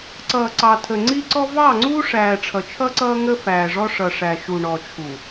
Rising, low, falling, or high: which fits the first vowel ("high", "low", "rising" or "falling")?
low